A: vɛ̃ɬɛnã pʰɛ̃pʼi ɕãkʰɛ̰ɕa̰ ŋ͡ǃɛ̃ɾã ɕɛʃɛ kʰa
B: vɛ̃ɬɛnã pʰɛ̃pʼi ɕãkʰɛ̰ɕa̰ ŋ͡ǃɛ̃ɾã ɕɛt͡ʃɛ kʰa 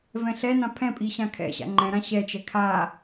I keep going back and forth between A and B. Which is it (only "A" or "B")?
B